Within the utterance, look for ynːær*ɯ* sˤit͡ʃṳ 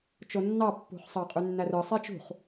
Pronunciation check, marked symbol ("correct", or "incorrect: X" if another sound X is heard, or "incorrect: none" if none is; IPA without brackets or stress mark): correct